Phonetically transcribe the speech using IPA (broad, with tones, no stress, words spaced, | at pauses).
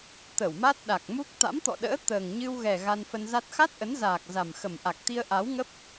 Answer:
t̪ə˧˩wma˦˥t̚ɗa˨˩k̚ mu˦˥k̚ t̪a̰˧˥mt̪ɔ̰˧˨ɗə̰ː˧˥ t̪əː˨˩ŋɲɨ˧wɣɛ˨˩ ɣa˧nfə˧nza˦˥t̚ xa˦˥t̚ʔə˨˦nzaː˨˩k̚ za˨˩mxə˨˩m ʔa˨˩k̚t̪i˧ə̯ ʔa˨˦wŋə˦˥p̚